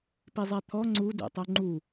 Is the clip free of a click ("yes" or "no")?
no